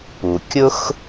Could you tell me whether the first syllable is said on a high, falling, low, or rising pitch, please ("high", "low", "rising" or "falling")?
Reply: low